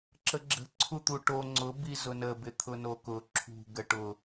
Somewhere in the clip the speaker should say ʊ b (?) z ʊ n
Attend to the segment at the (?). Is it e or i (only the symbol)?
i